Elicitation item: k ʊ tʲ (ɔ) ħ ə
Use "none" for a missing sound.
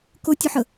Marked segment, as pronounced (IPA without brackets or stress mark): ʊ